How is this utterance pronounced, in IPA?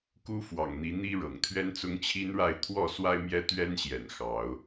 k u˦ f w ɑ̰˨˩ ŋ n̪ i˨˦ n̪ i˦ ɻ ɤ̰˨˩ ŋ t̪ʰ ɥ ɛ˦ n t͡s ʊ˦ ŋ t͡ɕʰ i˦ n ɻ a˥˨ ɪ̯ t̪ʰ w ɔ˥˨ s w a˦ ɪ̯ m j ɛ˦ t̪ ɥ ɛ˦ n ɕ j ɛ̰˨˩ n x ɑ˨˦ ʊ̯

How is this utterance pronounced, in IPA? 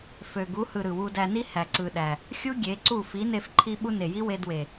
f ø˨ ɡ u˨˦ h ɯ˨ ɾ ɯ˨ w u˧ d æ˧ n i˦ h æ˨ ǀ ɯ˨ ɗ æ˨ | xʲ u˦ ɡʲ e˨˦ ǀ u˦˨ f i˨˦ n e˧ f ǃʰ i˧ ɓ u˧ n e˨ j i˦ w e˧ d w e˨

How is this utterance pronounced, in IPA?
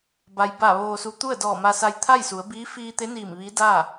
b a˩ j b a˧˩ ʋ oː˧ s u˧ t̪ u˥˨ ə̯ d ɔː˧˩ m a˧ s a˧ j t̪ʰ a˥˨ j s u˩˧ ə̯ b iː˧˥ f iː˧ t̪ e˧˥ n iː˧˩ m ʋ i˧˥ d a˥˨

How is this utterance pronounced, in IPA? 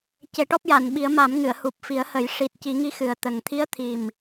c e˨˩˦ ʈ ɔ˦˥ p̚ j a˨˩˨ n ɓ i˨˩˦ ə̯ m a˨˩˦ m ŋ ɨ˨˩˨ ə̯ h u˨˩ p̚ f i˨˩˦ ə̯ h ə˨˩˦ j ʂ i˨˩ t̚ c i˨˩˦ ŋ i˧˥ x ɨ˨˩ ə̯ t̪ ə˨˩ ŋ t̪ʰ i˧˥ ə̯ t̪ʰ i˨˩ m

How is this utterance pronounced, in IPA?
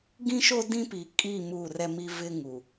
ɡ ĩ˦ ʃ o˦ d ĩ˦ p i˨ kʼ i˦˨ m u˦˨ r ɛ˦ m i˦ v ɪ˦ ŋ u˨

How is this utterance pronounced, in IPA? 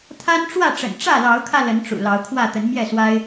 t̪ʰ a˦ n ʈ͡ʂ w ä˥˨ ʈ͡ʂ ə̰˨˩ n ʈ͡ʂ ä˥˨ l ɑ˨˦ ʊ̯ kʰ ä˧ l ə˨˦ n ʈ͡ʂ ṵ˨˩ l ɑ˨˦ ʊ̯ kʰ w ä˥˨ t̪ ə˨˦ n m j ɛ˥˨ s w a˦ ɪ̯

